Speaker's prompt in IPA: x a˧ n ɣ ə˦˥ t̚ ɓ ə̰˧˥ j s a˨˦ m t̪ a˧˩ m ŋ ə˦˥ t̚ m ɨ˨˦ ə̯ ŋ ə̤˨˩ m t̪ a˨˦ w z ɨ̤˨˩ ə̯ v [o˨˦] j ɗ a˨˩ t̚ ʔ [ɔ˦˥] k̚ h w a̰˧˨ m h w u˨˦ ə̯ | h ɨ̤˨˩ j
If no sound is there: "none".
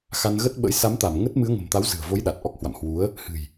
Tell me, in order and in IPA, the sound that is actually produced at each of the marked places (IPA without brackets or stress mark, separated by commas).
o˨˦, ɔ˦˥